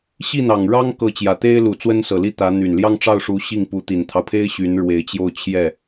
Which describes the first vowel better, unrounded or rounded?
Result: unrounded